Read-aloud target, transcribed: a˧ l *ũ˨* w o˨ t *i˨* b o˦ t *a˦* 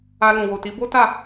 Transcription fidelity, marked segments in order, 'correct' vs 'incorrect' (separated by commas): correct, incorrect, incorrect